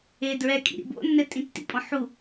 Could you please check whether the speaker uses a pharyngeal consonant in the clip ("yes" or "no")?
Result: yes